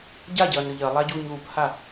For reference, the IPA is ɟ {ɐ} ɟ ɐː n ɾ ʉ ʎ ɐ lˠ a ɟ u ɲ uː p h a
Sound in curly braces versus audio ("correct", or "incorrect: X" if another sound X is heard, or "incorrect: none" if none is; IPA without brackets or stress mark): incorrect: a